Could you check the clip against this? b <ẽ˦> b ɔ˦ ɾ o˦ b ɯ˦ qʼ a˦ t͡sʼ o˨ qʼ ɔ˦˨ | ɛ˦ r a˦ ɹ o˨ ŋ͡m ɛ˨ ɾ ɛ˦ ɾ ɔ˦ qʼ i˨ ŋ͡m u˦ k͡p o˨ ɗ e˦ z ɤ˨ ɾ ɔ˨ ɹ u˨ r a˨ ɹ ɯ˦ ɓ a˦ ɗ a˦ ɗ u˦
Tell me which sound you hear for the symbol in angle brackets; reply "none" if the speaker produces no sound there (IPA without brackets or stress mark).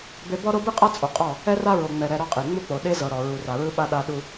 e˦